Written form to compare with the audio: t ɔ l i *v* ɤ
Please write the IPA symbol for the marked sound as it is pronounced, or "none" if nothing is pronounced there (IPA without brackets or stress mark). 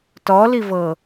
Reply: v